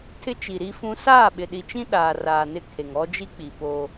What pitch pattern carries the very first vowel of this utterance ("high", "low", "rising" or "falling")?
high